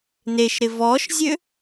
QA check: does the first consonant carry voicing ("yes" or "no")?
yes